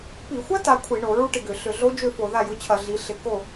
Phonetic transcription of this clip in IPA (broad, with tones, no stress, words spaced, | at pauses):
pi˧˩˧xʷɐ˦˥ ta˨˥ kʷʰi˧˩˧ɳo˧˩˧ɹu˥˨ ʈɪ˥˨ɡʏ˧˩˧ ɬʏ˧˩˧ɮo˦˥d͡ʒø˥˨ fo˧˩˧ða˥˨jʊ˦˥t͡ɕʰɐ˧˩˧ ɮi˨˥ɬɪ˧˩˧ ko˥˨